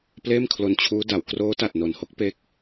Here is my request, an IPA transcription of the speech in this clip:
pleː˥˩mkʰlo˧nt͡ɕʰuː˦˥ da˩˦w kroː˦˥ ta˨˩t̚no˨˩nho˦˥k̚ pe˦˥k̚

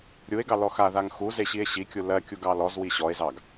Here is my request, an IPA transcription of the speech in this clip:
ɾʲue̯ɡɑ lɔxaðaŋ xuze ɕie̯ɕikʲu lɜkʲu ɡɑlɔzwi ɕɔe̯zɑɡ

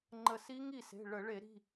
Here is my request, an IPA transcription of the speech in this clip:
ŋ͡ǃə˧˩si˦˥ ŋi˥˩se̤˩˧˩ ɭə˧˩˧ ɭe˧˩˧ɾi̤˩˧˩

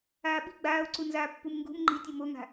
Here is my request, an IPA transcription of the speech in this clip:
aːɓi̤ ɡ͡baːo̯ǀunzaː pːumŋɡṳm ŋ͡ǃitʲɨ moŋa̤

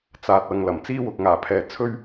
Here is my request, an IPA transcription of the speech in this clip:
t͡saː˨t̚ ɐ˨ŋ lɐ˨˩m t͡siː˥wʊ˨k̚ ŋaː˨˩pʰɛː˨ t͡sʰɵ˥ɥ

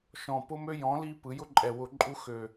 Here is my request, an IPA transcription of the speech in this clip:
ʃɔ̃˨˩pʊ˦mø˦ jɔ̃˨˥li˦ pɯ˩˧jʊ˦ǃʼɛ˨˩wʊ˧˩˧ ǃʼu˦xø˨˩

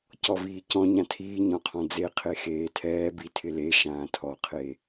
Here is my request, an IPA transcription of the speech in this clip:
cɔviːcɔ̃ ɲãtʰiːɲɔ̃qʰɔ̃ d͡zeqʰe xeːtʰɛː bitʰɪle ʃãːtʰɔqʰe

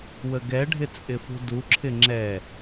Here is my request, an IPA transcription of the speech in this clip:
wəɡɛɖʱɪ t͡sʼɪfṳduǁʰɪ ŋ͡ǁɛ

